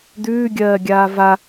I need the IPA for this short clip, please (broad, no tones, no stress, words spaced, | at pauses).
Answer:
d̪ʉːɡʲɜːɡʲaː va